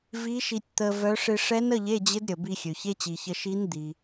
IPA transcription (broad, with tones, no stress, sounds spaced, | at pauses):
v i˧˥ ʃ i˧ tʲ t̪ ə˧ v œ˧˥ ʂ ɪ˧ ʂ ɛ˧˥ n ə˧˥˧ ʎ e˧˥˧ d͡ʑ ɪ˧˥ d ɾʲ ə˩ b i˧ xʲ ø˩ ç e˧˥˧ t͡ɕ i˩ ç ə˧ ʃ i˧˥ n d̪ i˩